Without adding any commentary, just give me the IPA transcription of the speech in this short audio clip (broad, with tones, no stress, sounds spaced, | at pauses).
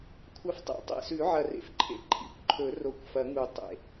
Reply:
kʷʰ ɐ˨˥ f tˤ ḛ˨˥ tˤ ḛ˨˩ s ʉ˨˩˦ ʕ ɐ˨˩ r ḛ˨˩ f ǃʰ ḛ˨˥ ǃʰ ḭ˨˩ kʷ ǃʰ ɵ˨˩˦ r o˨˩ kʷ f ɐ˨˩˦ ŋ u˨˩˦ tˤ ḛ˨˩